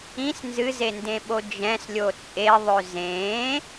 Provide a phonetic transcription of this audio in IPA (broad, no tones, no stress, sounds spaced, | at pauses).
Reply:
ĩ s n z ɨ z e n d ẽ ɓ o d͡ʒ ɛ̃ s lʲ o t͡sʼ e ðˤ ø z ẽ